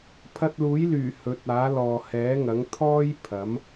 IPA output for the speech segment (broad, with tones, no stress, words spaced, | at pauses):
pʰɐ˧t̚luː˨˥jlyː˨˩ hɵ˨˥t̚aː˨˥ lɔː˨hɛː˨˥ŋɐ˨˥ŋ t̪ʰɔː˥j pʰɐ˨˥m